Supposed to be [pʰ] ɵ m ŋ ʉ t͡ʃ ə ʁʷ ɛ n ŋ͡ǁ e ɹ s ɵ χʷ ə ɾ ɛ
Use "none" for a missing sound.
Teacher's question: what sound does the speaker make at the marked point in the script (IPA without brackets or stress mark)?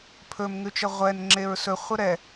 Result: pʰ